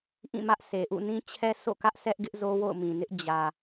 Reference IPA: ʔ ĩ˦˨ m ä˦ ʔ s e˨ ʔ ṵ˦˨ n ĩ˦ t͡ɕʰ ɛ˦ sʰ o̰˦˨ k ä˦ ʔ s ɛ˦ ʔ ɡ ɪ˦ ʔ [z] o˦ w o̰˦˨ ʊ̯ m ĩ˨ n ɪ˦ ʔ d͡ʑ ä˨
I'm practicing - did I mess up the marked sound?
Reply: no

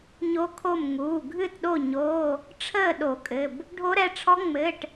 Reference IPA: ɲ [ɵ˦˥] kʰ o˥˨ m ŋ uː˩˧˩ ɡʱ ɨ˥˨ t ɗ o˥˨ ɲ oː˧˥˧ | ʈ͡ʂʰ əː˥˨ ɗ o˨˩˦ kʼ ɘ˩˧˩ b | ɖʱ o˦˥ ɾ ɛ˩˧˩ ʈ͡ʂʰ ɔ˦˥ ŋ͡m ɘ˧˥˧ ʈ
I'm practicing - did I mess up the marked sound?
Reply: yes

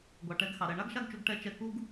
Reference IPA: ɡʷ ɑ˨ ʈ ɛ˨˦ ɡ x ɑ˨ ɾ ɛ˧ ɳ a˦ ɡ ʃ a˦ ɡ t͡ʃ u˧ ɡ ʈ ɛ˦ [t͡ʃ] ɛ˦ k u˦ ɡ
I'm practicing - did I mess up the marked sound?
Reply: no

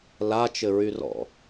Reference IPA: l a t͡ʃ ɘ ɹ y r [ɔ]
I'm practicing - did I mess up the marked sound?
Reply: yes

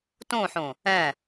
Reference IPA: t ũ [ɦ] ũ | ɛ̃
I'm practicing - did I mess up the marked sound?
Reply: yes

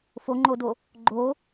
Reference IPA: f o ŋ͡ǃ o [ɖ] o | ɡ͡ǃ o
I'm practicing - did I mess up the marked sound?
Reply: yes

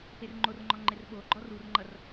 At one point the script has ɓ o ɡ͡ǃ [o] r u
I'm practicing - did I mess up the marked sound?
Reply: yes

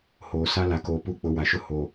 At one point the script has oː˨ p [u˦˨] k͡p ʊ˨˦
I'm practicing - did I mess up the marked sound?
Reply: no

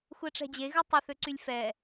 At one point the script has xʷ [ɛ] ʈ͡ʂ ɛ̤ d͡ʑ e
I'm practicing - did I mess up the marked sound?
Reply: no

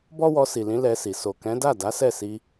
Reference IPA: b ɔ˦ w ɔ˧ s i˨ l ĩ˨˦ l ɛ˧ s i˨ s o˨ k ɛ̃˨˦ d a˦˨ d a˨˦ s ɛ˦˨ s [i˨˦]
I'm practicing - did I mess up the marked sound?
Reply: yes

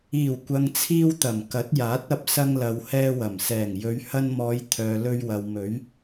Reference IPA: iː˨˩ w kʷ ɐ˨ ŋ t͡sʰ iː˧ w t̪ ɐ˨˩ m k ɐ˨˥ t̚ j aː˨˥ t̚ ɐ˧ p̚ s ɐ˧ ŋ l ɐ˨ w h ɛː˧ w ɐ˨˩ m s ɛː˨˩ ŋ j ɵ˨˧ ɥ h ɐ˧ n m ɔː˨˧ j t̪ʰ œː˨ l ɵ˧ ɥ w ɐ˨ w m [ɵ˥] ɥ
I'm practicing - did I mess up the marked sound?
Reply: yes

